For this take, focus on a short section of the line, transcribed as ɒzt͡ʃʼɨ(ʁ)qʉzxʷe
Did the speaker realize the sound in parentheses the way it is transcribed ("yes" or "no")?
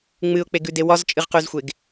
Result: yes